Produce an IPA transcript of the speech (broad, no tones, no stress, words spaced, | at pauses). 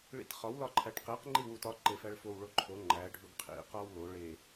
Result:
ɭḭtχɒw lɒǃʰæʈqeq ŋ͡ǃiwutɒ ǃefæɭfow ɭoǃʰo ŋ͡ǃæ ɖʱuɡqʰḭ qɒwlo ɭe